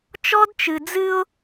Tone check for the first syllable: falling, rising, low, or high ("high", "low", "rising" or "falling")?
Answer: high